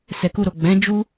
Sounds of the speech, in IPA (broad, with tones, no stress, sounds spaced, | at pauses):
s ɛ˨ k u˧ ɾ o˨ ɡ͡b ɛ̃˨˦ d͡ʒ u˦